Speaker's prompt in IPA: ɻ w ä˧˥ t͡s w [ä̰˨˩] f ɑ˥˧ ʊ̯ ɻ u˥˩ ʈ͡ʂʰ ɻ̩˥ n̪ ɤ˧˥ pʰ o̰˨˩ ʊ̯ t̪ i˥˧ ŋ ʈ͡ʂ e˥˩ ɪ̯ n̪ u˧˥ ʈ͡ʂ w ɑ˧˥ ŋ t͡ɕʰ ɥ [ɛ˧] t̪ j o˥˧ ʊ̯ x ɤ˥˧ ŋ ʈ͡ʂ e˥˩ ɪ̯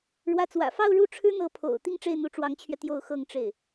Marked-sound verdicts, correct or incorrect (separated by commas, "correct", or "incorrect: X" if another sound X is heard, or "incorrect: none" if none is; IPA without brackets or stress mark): correct, correct